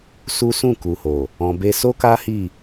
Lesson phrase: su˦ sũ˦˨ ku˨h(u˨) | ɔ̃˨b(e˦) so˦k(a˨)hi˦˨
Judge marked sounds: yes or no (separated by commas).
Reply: no, no, no